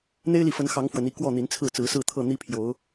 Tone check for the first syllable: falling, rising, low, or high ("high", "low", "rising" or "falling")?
high